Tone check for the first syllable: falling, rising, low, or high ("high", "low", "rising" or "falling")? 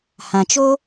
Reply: low